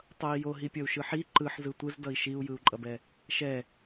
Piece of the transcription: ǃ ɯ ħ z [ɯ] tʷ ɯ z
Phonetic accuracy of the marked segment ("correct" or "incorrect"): correct